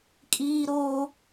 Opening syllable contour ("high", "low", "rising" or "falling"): high